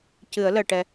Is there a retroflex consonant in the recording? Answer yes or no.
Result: yes